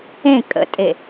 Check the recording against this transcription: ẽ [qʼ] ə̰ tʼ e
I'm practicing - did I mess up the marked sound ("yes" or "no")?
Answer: yes